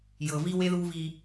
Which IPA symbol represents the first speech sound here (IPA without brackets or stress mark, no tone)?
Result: j